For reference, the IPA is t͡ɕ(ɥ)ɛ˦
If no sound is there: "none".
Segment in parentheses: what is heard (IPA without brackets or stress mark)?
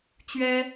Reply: ɥ